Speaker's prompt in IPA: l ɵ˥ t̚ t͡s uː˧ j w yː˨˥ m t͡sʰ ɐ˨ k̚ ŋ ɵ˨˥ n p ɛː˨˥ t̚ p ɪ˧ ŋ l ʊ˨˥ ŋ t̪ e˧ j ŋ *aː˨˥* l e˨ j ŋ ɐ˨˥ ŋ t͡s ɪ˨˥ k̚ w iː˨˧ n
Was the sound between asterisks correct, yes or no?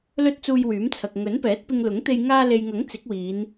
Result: no